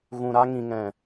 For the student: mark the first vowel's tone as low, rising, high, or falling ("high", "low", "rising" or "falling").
low